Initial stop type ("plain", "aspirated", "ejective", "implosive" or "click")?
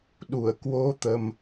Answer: implosive